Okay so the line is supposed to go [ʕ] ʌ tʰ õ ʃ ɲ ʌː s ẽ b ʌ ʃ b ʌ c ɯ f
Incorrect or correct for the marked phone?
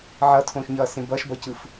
correct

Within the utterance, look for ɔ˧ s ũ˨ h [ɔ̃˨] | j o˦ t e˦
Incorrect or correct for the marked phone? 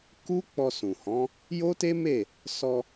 incorrect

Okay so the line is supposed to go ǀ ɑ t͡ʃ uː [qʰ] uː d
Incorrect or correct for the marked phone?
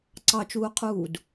correct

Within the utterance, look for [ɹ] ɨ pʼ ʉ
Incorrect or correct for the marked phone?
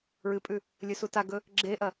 correct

